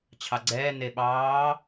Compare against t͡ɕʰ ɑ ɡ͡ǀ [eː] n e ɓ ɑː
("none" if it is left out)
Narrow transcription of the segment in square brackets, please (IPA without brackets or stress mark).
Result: ɛː